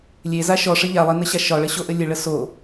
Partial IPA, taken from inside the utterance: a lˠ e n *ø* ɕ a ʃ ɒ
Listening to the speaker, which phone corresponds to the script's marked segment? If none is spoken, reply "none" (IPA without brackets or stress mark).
ə